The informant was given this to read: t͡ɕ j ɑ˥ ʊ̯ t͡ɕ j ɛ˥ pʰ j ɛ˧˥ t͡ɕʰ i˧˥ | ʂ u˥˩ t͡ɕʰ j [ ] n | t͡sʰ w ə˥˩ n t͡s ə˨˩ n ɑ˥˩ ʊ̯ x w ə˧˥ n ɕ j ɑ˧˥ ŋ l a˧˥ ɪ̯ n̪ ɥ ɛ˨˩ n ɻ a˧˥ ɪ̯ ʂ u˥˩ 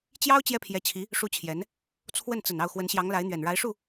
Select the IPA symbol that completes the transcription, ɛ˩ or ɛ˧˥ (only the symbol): ɛ˧˥